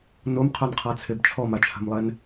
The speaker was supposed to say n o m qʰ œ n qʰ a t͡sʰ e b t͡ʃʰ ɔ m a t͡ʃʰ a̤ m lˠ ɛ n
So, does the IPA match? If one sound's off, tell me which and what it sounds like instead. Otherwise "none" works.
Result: none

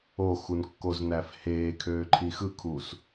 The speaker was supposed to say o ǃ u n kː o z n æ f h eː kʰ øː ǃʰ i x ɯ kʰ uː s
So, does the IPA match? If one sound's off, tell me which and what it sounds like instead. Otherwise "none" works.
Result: ǃ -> x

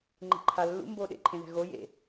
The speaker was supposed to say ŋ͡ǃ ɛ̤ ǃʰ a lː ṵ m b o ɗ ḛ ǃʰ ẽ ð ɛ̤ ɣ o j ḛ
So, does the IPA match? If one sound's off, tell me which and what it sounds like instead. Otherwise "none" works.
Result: none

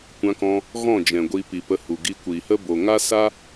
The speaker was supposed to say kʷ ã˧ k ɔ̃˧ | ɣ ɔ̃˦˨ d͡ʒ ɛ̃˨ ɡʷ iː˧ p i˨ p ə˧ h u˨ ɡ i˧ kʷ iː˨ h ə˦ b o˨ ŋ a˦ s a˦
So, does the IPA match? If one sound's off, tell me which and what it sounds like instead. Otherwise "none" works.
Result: none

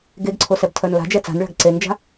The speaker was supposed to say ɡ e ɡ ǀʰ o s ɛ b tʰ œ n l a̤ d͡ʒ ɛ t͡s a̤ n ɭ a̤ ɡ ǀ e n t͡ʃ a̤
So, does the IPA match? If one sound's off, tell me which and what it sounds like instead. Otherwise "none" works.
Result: t͡ʃ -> d͡ʒ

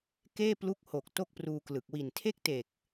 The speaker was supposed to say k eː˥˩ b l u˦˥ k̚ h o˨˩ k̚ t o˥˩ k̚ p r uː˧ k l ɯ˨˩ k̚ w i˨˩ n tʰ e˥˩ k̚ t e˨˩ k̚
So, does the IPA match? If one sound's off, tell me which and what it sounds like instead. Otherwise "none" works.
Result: b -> p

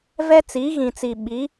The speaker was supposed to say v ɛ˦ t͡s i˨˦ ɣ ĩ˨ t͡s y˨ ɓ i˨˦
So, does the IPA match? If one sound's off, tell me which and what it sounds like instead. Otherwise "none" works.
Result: y˨ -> i˨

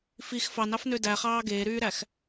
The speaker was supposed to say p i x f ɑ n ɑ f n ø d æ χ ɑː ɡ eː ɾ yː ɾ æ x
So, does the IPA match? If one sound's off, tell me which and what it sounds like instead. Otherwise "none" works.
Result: p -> f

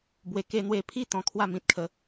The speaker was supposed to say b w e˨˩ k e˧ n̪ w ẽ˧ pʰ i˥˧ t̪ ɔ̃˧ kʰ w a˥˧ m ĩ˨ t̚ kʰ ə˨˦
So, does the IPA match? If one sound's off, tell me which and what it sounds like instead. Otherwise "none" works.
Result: ẽ˧ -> e˧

